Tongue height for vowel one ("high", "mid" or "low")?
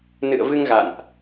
high